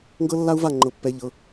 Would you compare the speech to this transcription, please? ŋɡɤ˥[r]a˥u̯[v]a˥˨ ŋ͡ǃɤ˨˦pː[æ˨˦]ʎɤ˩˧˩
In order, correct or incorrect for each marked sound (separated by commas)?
incorrect, correct, incorrect